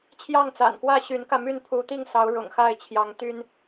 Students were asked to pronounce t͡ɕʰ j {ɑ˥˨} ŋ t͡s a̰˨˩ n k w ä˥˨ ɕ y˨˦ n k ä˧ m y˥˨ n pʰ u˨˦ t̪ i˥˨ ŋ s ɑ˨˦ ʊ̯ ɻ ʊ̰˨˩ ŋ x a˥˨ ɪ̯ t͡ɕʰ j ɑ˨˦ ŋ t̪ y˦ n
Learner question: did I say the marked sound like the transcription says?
yes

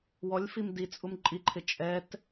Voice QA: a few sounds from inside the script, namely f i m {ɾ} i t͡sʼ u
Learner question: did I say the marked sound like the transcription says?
no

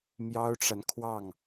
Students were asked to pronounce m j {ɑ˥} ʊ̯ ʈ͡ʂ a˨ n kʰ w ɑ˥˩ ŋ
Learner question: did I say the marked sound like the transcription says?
yes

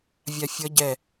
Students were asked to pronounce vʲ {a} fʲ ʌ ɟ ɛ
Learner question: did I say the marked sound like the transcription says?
yes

